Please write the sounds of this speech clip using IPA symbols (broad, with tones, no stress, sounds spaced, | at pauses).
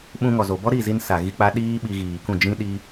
ɓ ũ˧ ŋ ɔ˨ z o˨ b ɔ˦ ɾ i˦˨ z i˧ n s a˨ ɣ i˧ k͡p a˧ ɗ iː˦ ɓ i˧ ɣ iː˨ k ũ˦˨ d͡ʒ ĩ˧ ɗ i˧